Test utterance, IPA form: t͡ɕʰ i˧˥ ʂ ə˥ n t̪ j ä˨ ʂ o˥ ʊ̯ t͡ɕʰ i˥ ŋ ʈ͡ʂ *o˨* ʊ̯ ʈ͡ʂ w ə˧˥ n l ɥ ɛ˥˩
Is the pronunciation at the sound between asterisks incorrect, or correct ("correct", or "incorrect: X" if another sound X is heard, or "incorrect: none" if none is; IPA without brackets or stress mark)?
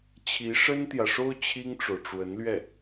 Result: correct